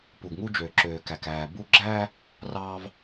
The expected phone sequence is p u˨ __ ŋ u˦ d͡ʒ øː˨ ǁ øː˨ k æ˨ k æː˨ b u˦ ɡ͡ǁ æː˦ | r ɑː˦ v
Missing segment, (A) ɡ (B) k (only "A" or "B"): A